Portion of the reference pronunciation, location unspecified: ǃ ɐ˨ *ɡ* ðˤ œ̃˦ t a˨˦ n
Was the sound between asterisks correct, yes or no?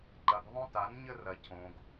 yes